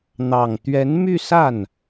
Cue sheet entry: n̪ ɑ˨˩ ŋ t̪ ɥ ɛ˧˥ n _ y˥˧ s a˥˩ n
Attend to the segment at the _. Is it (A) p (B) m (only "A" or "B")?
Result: B